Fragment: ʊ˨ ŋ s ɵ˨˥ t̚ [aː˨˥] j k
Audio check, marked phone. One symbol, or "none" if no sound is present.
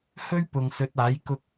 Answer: aː˨˥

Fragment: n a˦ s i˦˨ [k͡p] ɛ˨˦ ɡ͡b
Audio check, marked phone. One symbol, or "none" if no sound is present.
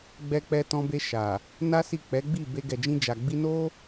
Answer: k͡p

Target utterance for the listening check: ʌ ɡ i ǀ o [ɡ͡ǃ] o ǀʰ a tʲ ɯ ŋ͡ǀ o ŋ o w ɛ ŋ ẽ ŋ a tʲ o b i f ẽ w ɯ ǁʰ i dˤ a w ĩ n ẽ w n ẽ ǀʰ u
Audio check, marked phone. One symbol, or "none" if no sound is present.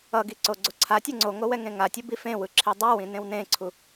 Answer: ɡ͡ǀ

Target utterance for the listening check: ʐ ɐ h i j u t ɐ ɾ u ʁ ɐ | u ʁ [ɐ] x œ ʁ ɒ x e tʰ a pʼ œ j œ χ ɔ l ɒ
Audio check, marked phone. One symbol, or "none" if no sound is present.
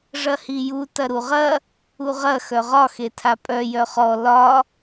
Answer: ɐ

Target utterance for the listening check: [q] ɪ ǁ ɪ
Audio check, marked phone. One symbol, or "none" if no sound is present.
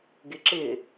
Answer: ɡ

